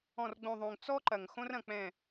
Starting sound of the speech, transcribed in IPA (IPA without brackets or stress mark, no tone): ɔ̃